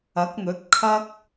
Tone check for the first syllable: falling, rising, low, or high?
rising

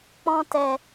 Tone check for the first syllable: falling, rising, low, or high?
high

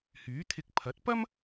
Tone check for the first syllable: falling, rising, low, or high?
rising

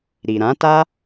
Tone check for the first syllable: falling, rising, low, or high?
low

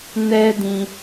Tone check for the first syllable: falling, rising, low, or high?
high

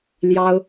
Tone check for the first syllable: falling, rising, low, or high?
high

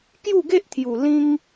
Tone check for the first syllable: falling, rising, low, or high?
falling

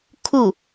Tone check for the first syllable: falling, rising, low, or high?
falling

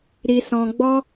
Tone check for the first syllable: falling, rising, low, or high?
low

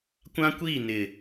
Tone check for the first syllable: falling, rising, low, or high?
high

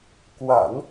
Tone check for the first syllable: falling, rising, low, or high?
low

